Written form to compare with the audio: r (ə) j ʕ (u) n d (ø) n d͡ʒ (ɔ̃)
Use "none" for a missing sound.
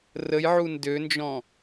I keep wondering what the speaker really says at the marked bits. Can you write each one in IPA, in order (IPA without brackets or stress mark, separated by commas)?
ə, u, ø, ɔ̃